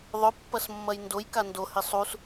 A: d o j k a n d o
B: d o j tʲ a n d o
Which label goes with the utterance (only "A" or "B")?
A